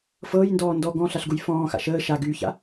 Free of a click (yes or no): yes